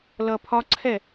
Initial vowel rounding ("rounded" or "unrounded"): unrounded